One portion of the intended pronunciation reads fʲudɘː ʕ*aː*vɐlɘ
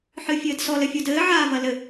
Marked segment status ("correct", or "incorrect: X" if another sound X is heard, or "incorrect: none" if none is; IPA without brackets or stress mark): correct